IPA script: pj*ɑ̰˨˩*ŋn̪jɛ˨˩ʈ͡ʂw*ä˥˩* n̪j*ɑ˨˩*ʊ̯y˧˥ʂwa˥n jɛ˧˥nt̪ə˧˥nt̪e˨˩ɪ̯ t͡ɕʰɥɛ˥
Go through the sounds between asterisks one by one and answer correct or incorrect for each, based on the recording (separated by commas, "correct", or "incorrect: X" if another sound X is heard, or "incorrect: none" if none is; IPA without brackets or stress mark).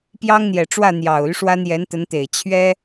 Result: incorrect: ɑ˥, correct, correct